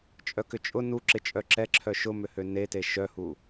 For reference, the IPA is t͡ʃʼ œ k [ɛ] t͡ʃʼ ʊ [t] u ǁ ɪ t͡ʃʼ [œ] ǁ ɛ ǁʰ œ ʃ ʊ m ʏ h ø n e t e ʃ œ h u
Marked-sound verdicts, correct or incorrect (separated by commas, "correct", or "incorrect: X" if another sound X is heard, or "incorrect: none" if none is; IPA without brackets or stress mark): incorrect: ʏ, incorrect: n, correct